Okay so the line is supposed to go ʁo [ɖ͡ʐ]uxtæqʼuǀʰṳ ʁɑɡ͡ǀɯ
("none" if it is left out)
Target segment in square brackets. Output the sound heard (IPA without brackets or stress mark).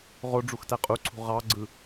ɖ͡ʐ